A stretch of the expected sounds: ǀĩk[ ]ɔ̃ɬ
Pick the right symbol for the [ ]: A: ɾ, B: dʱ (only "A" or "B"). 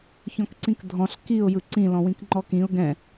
B